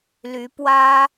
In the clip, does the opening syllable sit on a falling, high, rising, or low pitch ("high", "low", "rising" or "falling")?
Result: rising